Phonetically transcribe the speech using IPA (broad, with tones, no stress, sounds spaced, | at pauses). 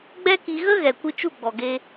ɡ͡b ɛ˦ k i˧ ɣ ə˦ ɣ ɛ˨ kʷ ɨ˧ t͡ʃ u˦˨ ɡ͡b ɔ˨ ɡ e˧